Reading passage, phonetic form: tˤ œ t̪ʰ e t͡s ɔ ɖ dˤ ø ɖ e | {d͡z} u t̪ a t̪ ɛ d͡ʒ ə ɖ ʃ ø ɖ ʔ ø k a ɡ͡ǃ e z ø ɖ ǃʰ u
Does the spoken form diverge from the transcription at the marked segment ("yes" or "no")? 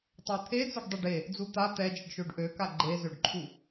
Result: no